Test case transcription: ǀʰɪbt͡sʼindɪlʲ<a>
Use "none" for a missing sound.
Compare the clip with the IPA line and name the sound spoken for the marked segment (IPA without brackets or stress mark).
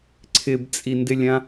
ã